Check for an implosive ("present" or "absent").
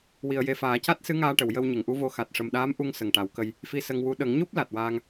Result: present